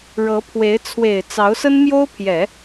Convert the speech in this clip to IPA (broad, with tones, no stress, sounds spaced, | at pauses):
ɻ ɤ˧˥ pʰ w e˧˥ ɪ̯ t͡sʰ w e˨˩ ɪ̯ t͡s ɑ˧˥ ʊ̯ s ə˥ n m j o˥ ʊ̯ pʰ j ɛ˨˩˦